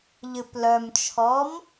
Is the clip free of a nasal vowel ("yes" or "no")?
yes